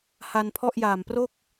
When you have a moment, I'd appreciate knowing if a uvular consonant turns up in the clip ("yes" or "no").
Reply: no